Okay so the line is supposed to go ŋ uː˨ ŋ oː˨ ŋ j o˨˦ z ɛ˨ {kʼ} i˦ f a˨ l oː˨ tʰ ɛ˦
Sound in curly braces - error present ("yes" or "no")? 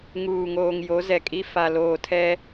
no